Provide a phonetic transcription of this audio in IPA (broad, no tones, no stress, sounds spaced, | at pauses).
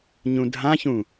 ɲ ũ dʱ ã ç ũ